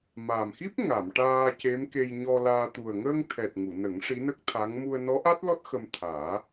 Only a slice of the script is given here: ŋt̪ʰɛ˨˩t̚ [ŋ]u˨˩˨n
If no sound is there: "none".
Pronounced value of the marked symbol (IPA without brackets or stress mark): ŋ